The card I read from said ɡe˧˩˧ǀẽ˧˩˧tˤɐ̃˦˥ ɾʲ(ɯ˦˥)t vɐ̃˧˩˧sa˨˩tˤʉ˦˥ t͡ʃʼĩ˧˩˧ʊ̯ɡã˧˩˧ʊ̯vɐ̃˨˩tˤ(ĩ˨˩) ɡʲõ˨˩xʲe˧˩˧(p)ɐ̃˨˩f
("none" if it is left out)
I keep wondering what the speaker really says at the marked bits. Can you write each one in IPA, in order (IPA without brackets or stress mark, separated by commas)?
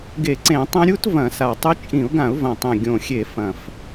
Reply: u˦˥, ẽ˨˩, f